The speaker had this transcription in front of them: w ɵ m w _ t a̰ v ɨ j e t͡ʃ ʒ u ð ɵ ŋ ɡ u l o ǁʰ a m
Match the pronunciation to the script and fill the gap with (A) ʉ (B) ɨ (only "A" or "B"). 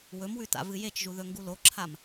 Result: A